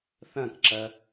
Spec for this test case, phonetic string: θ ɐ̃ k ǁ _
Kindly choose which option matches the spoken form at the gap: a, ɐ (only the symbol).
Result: ɐ